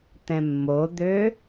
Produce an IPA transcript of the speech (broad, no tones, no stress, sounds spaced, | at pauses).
t̪ ɛ̃ mː o d̪ ø